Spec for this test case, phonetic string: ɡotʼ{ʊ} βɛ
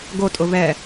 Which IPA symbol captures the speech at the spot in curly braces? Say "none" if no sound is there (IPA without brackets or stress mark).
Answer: ʊ